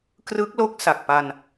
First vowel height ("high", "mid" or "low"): high